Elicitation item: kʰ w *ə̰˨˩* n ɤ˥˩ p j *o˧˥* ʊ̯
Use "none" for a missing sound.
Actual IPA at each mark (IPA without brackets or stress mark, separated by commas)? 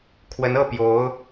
ə˧˥, o˧˥